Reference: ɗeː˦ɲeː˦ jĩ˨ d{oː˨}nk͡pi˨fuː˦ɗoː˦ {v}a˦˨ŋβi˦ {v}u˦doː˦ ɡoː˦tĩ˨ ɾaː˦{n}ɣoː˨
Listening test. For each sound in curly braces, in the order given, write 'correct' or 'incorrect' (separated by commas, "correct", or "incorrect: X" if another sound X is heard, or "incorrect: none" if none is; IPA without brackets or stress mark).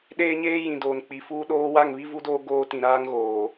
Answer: correct, incorrect: w, correct, incorrect: ŋ